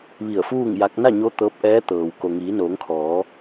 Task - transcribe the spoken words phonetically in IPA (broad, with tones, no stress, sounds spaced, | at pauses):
ʋ i˧˩ ə̯ f uː˥˨ ŋ j a˧˥ k̚ n a˥˨ ɲ o˧˥ t̪ ɤː˧˥ p̚ ʔ ɛː˧˥ t̪ ɤː˩ w k o˩ ŋ iː˩˧ n oː˩˧ ŋ kʰ ɔː˩˧